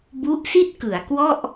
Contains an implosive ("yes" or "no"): no